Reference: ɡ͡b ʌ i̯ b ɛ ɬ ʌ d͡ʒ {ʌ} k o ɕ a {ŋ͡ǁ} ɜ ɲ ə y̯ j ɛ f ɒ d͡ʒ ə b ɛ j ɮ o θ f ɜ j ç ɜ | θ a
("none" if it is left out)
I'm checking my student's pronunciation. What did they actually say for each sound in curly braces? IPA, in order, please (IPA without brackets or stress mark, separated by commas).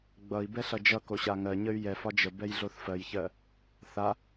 ʌ, ŋ